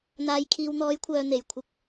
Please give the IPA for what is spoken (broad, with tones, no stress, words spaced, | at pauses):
n̪aː˨jkʰiː˨wn̪ɔː˨˧jkʷʰœː˨ n̪e˨˩jkʷʰɪ˧k̚